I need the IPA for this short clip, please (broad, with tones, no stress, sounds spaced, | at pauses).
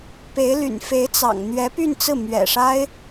p e˧˥ ɪ̯ l y̰˨˩ n f e˧˥ ɪ̯ t͡s ɑ̰˨˩ ŋ n̪ ɥ ɛ˧˥ p y˥˧ n t͡s ɹ̩˥˩ m ɥ ɛ̰˨˩ ʂ a˥ ɪ̯